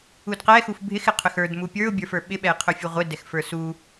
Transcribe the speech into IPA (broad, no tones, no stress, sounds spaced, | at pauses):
u d q ɛ x u f bʱ ɪ x ɪ qʰ ʏ x ə˞ d m u pʲ ə˞ ʊ̯ bʲ ə˞ f ə˞ ɓ ɪ ɓ ɛ ɪ̯ qʰ ʏ fʲ u ʁʷ ɪ d ɛ x f ə˞ s u